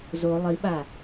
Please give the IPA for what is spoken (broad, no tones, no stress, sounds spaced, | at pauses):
z o lˠ i ɓ a